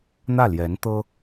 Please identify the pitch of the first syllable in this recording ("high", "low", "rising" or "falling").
falling